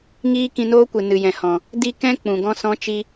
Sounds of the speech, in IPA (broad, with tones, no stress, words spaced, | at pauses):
ŋiː˦ kĩ˧noː˦kʷɨ˨ nɨ˨jɛ̃˨hɔ̃˨ | di˦ kɛ̃˦ k͡pũ˨ɡɔ̃˦sɔ̃˦ t͡ʃi˦